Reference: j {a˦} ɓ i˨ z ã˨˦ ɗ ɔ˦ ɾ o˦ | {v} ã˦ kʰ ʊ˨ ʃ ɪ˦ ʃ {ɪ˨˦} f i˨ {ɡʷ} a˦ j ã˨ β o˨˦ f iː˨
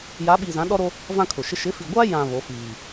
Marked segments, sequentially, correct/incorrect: incorrect, correct, correct, correct

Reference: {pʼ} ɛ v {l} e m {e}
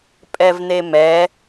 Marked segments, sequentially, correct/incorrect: correct, incorrect, incorrect

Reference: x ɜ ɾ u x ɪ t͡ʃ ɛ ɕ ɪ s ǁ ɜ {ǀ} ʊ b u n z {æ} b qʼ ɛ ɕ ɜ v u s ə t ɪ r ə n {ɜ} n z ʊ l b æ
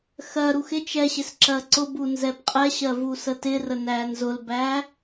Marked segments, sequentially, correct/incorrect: correct, incorrect, incorrect

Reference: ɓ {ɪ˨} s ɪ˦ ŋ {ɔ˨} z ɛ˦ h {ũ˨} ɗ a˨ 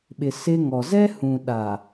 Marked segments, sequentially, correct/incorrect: correct, correct, correct

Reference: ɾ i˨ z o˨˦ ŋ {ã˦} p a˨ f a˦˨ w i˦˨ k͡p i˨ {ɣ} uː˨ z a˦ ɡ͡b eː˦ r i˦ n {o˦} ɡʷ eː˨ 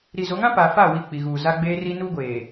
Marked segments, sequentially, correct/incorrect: correct, correct, incorrect

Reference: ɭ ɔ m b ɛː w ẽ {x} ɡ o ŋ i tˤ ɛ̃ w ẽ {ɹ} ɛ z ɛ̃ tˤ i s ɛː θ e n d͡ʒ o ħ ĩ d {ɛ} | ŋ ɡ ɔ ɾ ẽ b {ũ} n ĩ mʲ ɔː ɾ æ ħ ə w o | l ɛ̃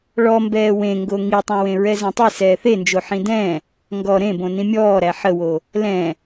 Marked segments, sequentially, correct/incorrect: incorrect, correct, incorrect, incorrect

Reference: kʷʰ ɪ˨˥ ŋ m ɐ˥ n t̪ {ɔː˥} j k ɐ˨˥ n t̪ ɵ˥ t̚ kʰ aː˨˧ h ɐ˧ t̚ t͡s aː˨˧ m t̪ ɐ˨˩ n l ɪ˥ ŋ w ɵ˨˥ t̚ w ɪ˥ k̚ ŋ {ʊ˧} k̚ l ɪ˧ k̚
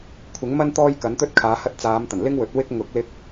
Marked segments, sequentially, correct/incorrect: correct, incorrect

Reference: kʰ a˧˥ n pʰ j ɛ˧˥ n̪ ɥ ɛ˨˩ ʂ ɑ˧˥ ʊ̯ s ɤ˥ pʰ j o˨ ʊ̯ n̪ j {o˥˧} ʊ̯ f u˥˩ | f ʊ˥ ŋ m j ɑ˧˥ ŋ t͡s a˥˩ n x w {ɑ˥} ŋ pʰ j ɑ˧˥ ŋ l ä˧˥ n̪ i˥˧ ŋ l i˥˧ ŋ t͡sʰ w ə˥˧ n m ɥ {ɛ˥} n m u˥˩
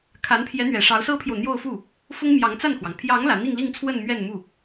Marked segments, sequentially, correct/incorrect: correct, incorrect, incorrect

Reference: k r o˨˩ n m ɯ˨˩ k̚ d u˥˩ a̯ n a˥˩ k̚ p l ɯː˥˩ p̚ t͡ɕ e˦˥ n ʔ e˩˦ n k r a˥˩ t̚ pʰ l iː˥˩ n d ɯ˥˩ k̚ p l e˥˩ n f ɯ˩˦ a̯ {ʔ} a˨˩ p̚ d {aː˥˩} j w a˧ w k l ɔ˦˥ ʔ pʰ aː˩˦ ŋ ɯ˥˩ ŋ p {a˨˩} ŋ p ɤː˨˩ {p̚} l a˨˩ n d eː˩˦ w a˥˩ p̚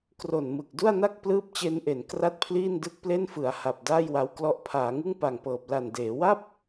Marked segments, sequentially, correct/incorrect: incorrect, correct, correct, correct

